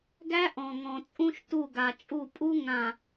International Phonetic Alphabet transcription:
ɡæ˦ ʔɔ̃˨ŋɔ̃˨t͡sʼũ˦ʃ tu˦˨ɡa˨t͡ʃʼu˦˨ pʼu˦ ŋã˨

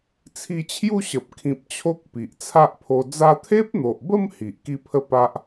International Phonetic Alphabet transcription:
t͡sʰi˧t͡ɕʰju˥˧ɕə˨p̚ kʰĩ˨p̚ t͡ɕʰo˦k̚pi˨ʔt͡sʰa˦ʔpʰo˧ d͡za˧t̪ʰe˦p̚n̪o˨ʔbə˥˧m hi˨ʔ ki˦pʰə˦ pa˦ʔ

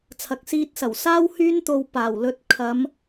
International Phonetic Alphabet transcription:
t͡sʰɐ˨k̚siː˧t̚sɐ˨˩wsaː˥w hyː˥nt̪o˧w paː˨˩wlɵ˧t̚ kʰɐ˨˧m

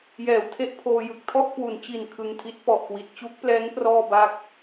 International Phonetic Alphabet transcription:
jɛː˩˦wtʰe˥˩ʔpʰoː˧jɯ˨˩k̚ tʰɔ˥˩ʔkwu˩˦nt͡ɕi˨˩n kʰɯ˧ŋtʰi˦˥t̚pɔ˨˩ʔkwi˨˩t̚ t͡ɕu˦˥k̚plɛː˦˥ŋ prɔː˥˩baː˥˩k̚

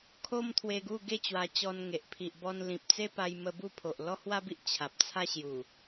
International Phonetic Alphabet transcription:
kʰo˦mt̪ʰwe˧ɡu˥˧ɡe˥˧ t͡ɕwa˧t͡ɕɔ˧n ŋe˨ʔ pʰi˨ʔbɔ˧nlĩ˨p̚t͡se˦ pa˧jmə˧ bu˥˧ pʰo˨ʔlɔ˦hwa˦bi˦ʔ t͡ɕʰa˨p̚t͡sʰa˦ɕju˨˩

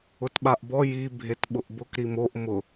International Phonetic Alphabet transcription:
ʊtɓaʔbɔ ji bʱetɓʊʔbʊk ɾimoʔ mʊ

